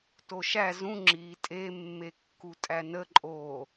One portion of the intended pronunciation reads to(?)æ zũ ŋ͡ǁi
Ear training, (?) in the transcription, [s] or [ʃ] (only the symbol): ʃ